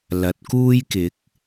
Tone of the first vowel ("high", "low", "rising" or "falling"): rising